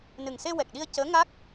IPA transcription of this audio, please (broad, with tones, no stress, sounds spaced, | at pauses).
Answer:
n ɨ˨˩ ŋ s e˧ w ɛ˨˩ k̚ ɗ i˧ ə̯ c əː˧˥ ŋ a˦˥ k̚